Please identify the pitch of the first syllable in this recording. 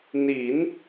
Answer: rising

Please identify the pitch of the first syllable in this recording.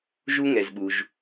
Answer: high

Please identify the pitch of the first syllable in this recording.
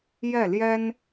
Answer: falling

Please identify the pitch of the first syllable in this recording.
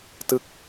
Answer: falling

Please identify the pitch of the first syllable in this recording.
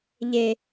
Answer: low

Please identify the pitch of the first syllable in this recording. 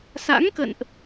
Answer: rising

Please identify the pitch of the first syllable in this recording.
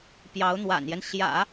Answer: rising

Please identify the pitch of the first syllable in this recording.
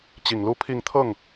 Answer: low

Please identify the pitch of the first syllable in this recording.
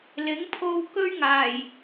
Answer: rising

